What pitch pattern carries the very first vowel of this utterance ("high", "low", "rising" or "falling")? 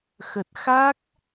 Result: low